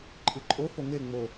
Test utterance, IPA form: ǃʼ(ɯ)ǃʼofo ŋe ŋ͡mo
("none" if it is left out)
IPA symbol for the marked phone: ɯ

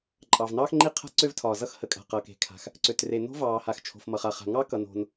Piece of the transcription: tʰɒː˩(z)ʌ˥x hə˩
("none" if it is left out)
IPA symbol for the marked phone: z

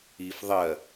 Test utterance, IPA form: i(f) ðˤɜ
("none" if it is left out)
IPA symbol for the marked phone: f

